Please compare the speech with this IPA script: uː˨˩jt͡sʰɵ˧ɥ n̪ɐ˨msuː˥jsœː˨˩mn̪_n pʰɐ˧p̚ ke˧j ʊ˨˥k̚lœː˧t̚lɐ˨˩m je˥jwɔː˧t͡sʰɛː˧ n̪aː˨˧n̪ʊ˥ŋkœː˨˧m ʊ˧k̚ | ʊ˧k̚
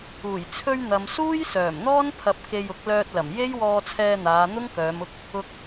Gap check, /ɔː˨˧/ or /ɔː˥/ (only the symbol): ɔː˥